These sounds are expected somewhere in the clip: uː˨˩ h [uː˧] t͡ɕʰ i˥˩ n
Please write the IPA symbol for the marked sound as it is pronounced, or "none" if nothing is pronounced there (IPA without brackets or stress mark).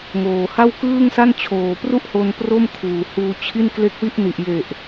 uː˧